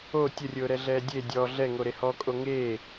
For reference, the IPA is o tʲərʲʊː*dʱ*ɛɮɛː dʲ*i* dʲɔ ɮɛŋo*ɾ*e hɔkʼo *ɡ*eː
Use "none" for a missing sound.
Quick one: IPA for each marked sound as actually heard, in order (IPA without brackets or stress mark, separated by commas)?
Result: ɾ, e, ɾ, ŋ